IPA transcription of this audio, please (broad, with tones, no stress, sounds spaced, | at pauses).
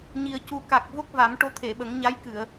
ɲ i˨˩ ə̯ c u˨˩ k a˨˩ k̚ v o˦˥ k̚ v a˨˩˦ m ʈ o˧˥ t̪ʰ e˨˩˨ ɓ ə˨˩˦ ŋ ɲ a˧˥ j k ɨ˨˩˨ ə̯